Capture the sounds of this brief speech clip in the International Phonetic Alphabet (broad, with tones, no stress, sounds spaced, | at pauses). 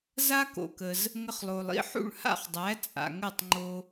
z a˥ k o̰˩ k ə˩ z | ŋ ə˧ χ lˠ o˩ lˠ ḭ˧ ħ ṵ˥˩ ɭ h a̰˥˩ χ dˤ æ˩˥ t͡sʼ a̰˩ ŋ ə˥˩ tˤ ŋ͡ǃ o˧